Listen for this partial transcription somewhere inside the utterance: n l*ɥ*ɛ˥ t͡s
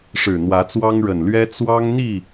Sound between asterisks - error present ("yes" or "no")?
no